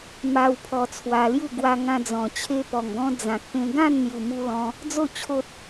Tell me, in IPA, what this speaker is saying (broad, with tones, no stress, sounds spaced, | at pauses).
m a˧ w pʰ ɔ˧ t͡sʰ w a˧ l j u˥˧ ɡ w a˧ ŋ ã˧ d͡z ɔ̃˨˩ t͡ɕʰ e˧ p ɔ˨˩ ŋ ɡ ɔ̃˧ d͡z ã˨ k̚ p ẽ˧ ɡ ã˥˧ n n̪ j u˨˩ m u˧ l ɔ̃˧ | d͡z o˥˧ t͡ɕʰ o˦ t̚